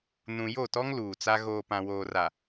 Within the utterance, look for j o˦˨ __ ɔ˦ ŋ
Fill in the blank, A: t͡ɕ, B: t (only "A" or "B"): B